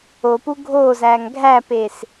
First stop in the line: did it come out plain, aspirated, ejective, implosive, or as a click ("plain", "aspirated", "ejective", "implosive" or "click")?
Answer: plain